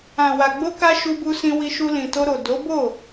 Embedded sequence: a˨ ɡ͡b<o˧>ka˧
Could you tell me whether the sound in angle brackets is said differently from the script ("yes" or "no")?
no